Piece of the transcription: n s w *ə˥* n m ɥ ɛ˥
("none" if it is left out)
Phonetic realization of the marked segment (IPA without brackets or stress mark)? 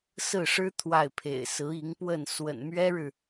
ə̰˨˩